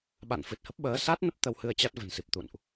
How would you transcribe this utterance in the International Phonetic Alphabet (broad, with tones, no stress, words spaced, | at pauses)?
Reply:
ɓa̰˧˨nfɨ˨˩t̚hə˦˥p̚ɓəː˨˦ sa˦˥t̚nə˦˥p̚ t̪ə˧whɨ˧ə̯t͡ɕa˦˥t̚ və̤˨˩nsi˨˩p̚ t̪ṵ˧˨nʔ